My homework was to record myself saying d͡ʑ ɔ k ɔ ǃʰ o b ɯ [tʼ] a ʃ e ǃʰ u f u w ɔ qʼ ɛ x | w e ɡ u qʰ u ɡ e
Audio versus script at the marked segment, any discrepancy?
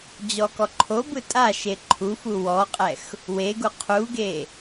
no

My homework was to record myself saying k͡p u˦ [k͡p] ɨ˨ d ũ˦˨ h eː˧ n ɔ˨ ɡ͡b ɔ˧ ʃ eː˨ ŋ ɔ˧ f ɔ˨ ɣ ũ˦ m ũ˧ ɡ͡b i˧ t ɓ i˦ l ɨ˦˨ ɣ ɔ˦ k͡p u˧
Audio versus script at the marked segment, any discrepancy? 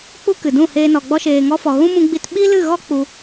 yes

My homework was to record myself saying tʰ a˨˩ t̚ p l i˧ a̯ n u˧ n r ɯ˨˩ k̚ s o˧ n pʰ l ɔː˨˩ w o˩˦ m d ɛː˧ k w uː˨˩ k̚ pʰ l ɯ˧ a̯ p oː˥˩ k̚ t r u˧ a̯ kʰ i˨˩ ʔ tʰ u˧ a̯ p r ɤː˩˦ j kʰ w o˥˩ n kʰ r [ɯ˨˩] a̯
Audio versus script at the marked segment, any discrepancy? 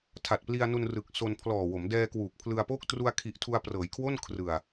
no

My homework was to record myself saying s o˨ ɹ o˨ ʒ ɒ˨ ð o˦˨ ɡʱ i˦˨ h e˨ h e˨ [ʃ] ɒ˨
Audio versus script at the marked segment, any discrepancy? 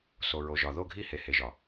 yes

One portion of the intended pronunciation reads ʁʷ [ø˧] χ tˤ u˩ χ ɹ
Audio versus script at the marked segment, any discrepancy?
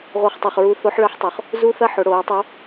yes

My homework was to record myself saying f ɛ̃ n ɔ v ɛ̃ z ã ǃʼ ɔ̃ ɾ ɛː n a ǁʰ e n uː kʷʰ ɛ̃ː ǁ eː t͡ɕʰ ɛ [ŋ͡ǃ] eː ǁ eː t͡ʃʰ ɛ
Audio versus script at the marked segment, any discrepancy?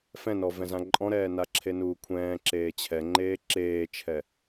no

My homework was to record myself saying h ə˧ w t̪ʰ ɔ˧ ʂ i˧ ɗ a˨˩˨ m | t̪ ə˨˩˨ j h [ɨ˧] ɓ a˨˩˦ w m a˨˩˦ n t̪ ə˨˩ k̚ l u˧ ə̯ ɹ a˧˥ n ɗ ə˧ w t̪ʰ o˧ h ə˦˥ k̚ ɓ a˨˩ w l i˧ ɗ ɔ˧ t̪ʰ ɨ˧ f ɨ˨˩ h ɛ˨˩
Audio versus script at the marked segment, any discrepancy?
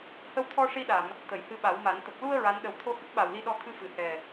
no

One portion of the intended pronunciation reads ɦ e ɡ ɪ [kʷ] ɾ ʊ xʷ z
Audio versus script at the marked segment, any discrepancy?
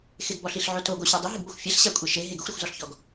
yes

